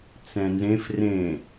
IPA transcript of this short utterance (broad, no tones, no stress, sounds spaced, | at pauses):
t͡s ɛ̃ n z ẽ f r ẽ